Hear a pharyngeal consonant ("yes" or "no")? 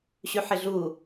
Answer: yes